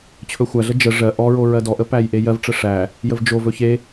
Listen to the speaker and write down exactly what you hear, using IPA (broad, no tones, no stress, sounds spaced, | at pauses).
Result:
t͡ɕʰ ɵ xʷ æ ɮ ə d͡ʒ ə ʐ ɜ ʔ ɔ ɹ o ɹ ɜ d ɔ ʔ ə p æ j ʔ e j ɜ v ʈ͡ʂ ə ʂ æ | j ə v d͡ʒ o v ɵ ç e